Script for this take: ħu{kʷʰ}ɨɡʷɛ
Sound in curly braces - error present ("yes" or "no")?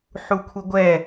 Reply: no